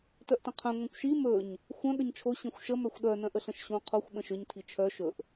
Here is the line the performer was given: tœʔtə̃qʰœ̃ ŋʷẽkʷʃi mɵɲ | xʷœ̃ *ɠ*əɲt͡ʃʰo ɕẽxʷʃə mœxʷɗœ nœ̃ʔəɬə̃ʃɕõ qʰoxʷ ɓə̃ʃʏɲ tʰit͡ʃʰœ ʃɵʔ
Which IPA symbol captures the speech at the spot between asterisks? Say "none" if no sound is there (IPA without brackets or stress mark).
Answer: ɠ